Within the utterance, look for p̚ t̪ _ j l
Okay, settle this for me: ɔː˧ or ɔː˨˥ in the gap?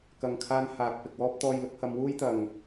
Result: ɔː˧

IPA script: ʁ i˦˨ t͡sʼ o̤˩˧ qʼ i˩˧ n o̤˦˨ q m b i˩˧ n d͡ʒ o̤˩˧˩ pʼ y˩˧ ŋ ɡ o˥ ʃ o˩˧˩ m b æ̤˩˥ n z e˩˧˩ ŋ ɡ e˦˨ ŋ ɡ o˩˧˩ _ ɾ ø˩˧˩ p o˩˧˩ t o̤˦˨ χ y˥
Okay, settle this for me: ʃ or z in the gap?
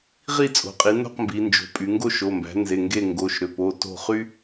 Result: ʃ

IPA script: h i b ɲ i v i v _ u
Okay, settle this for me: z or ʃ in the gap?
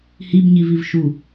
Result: ʃ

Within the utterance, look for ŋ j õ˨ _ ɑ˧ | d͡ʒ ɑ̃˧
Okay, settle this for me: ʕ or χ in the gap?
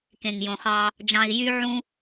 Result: χ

